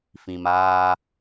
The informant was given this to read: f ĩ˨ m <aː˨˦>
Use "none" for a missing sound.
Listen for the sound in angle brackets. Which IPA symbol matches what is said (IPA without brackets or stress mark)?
aː˦